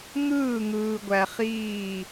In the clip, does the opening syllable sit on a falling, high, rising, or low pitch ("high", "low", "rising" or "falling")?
falling